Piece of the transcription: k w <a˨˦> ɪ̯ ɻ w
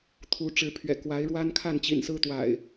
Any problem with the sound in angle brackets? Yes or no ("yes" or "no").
no